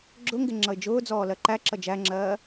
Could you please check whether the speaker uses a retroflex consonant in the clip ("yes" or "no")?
no